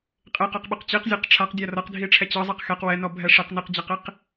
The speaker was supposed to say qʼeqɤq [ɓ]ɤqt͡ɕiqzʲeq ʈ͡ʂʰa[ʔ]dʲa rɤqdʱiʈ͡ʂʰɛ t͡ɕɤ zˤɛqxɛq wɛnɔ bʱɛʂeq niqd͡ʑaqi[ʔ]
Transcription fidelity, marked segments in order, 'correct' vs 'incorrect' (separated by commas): correct, incorrect, incorrect